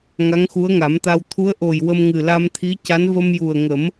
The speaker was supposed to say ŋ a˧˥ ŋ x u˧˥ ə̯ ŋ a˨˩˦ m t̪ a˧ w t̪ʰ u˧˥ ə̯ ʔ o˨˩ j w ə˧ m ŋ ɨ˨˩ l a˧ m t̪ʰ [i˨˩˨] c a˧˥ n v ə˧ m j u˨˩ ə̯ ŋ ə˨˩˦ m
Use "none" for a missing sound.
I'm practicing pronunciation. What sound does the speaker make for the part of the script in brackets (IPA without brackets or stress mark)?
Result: i˧˥